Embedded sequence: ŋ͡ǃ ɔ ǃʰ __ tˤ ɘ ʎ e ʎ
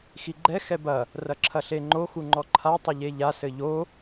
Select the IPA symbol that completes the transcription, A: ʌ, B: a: B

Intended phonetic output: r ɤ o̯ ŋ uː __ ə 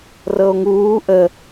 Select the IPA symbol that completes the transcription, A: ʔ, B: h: A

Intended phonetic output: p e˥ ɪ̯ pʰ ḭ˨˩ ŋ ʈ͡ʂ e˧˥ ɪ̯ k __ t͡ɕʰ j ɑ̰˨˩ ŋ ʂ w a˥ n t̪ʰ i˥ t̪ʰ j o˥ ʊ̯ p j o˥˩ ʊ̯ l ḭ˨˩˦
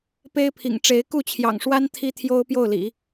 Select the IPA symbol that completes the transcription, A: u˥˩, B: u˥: A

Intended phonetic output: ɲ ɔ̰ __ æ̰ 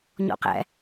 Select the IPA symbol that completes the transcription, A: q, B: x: A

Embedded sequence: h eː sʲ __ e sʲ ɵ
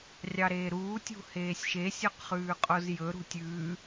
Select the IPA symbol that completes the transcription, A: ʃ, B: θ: A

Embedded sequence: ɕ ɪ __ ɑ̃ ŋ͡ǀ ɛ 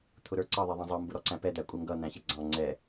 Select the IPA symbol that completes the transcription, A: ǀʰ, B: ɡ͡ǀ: B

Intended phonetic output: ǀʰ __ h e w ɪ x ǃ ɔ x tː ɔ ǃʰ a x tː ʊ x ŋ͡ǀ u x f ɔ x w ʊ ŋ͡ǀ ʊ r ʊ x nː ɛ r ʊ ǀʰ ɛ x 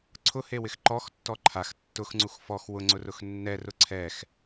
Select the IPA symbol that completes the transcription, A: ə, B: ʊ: B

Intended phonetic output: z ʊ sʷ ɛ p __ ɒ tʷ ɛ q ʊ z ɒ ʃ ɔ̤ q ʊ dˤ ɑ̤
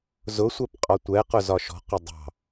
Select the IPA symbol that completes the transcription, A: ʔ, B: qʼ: B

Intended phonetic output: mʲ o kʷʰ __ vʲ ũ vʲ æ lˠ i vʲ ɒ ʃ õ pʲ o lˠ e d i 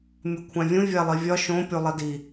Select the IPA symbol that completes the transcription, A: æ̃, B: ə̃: A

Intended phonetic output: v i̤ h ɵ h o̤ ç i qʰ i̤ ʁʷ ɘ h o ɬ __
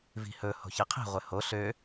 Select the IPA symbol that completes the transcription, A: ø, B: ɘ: A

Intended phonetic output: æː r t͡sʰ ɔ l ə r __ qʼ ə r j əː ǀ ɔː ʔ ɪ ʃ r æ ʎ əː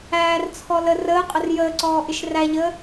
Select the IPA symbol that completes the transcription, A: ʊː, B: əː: B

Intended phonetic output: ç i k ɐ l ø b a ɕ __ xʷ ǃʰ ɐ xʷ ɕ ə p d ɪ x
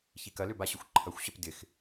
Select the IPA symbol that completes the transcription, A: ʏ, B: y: A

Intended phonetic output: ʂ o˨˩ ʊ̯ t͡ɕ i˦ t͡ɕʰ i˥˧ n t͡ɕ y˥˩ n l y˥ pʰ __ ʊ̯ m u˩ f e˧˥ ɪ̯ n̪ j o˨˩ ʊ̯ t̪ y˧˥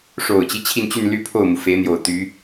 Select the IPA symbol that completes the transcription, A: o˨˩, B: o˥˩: B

